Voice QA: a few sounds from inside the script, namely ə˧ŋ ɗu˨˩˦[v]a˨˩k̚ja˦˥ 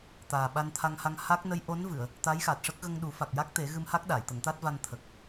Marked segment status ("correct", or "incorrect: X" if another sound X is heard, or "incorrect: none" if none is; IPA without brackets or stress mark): incorrect: f